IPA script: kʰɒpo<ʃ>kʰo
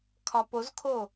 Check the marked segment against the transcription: incorrect: z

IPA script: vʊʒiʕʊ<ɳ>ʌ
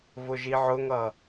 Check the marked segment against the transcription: incorrect: ŋ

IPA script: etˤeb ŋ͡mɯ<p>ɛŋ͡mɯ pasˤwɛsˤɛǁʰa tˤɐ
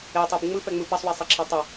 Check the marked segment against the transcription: correct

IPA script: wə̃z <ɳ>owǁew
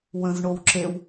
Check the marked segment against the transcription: correct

